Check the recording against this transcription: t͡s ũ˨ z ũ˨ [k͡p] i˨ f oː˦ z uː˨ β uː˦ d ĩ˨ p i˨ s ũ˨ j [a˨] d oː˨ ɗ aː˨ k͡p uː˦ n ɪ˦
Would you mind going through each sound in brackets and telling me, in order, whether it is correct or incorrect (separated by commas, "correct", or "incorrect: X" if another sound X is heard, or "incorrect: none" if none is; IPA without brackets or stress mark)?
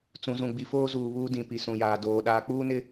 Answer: incorrect: ɡ͡b, incorrect: aː˨